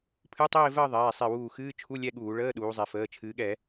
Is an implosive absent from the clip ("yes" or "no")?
no